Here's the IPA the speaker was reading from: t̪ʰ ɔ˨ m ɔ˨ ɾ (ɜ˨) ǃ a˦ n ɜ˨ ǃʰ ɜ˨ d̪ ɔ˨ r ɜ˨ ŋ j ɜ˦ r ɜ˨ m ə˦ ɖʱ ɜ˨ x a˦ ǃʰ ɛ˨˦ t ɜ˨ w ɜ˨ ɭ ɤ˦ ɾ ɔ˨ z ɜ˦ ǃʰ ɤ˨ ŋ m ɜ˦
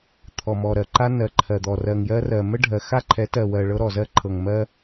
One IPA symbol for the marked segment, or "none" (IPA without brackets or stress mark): ɜ˨